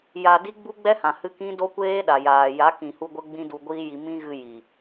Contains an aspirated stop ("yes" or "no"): no